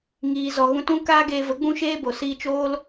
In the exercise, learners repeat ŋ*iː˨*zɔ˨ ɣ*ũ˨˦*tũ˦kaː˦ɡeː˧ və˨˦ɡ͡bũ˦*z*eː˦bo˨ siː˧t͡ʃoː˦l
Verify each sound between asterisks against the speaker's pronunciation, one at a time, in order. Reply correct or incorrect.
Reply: correct, incorrect, incorrect

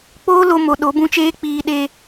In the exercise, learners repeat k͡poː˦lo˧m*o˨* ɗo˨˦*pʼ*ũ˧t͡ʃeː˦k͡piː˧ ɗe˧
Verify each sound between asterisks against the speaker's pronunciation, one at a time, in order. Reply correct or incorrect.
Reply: correct, incorrect

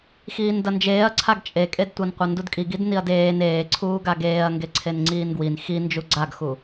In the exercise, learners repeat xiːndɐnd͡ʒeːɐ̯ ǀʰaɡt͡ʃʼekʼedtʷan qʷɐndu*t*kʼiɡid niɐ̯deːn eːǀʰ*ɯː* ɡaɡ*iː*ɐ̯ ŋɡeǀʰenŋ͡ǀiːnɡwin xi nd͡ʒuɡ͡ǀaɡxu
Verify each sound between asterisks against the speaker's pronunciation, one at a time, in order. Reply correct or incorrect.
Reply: incorrect, incorrect, incorrect

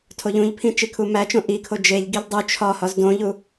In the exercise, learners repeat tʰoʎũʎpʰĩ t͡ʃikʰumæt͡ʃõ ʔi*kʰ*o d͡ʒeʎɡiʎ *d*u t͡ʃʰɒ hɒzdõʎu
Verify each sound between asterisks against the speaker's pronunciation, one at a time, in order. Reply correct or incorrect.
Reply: correct, incorrect

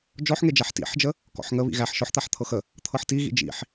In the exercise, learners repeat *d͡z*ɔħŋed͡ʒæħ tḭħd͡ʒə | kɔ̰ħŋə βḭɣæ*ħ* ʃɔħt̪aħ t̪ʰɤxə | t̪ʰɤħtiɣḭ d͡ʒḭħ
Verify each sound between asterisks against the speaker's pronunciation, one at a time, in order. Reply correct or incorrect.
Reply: incorrect, correct

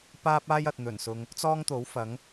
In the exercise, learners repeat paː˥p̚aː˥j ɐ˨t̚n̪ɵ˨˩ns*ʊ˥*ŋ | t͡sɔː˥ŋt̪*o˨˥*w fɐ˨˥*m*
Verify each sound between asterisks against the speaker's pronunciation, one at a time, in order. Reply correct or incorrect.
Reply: incorrect, correct, incorrect

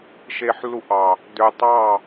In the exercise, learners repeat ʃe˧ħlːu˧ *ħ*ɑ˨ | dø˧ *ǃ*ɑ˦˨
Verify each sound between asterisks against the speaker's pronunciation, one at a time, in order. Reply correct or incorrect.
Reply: incorrect, incorrect

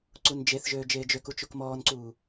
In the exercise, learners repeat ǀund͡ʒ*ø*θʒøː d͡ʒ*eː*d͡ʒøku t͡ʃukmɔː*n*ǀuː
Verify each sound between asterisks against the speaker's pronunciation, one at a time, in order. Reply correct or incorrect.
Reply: incorrect, correct, correct

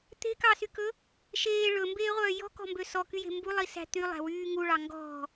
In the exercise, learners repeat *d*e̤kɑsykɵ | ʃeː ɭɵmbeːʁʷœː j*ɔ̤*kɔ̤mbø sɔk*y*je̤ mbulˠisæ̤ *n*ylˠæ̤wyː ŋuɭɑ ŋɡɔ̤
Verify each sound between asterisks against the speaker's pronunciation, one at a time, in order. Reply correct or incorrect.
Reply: incorrect, correct, correct, incorrect

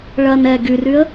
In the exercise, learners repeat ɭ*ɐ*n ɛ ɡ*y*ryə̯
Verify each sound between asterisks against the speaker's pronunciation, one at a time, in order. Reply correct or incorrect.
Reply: correct, correct

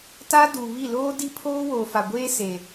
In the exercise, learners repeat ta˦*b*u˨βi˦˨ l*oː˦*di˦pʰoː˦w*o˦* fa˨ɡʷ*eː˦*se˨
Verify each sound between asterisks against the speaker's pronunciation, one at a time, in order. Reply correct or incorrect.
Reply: incorrect, correct, incorrect, correct

